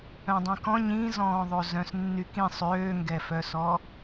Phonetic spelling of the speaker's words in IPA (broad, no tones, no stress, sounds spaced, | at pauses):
œ̃ dˤ ĩ k ɔ̃ ɲ ĩ z ɔ̃ː ðˤ o z œ̃ s nː y k ĩ sˤ øː ŋ ɡ ɛ f œ s ɔ